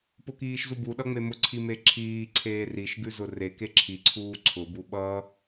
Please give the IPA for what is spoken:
pʊkiːʃzubu ɗʌŋ͡memʊ ǀʰimeǁʰiː ǀʰeːriʃ ɡʉzʊre keǁʰi ǀʰuːǀʰʊ buɓʌ

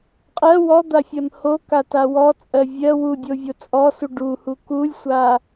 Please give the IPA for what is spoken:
qʼɜ wɔd̪afʲɜm hokata wɔt͡sʼɜ vʲɜ wudʲovʲo t͡sʼɔsu ɖuhu kulʲsʷa

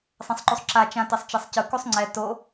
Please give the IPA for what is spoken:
sˤẽsˤǃusˤǁa t͡ʃãtesˤt͡ʃesˤcɯ kusˤŋ͡ǀɛ to

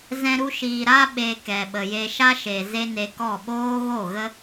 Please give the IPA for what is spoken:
zɛ̃˧ ɾu˧ʃiː˨ ɾa˧ɓe˨ kɛ˨ɓə˨je˧ ʃa˦ʃe˨ ze˦ne˧kɔ˦˨ ɓoː˦ɣo˦˨ɣə˦

